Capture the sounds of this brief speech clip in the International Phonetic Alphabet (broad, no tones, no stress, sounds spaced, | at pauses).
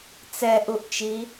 t͡s ɛ ʔ u ʔ t͡ʃ i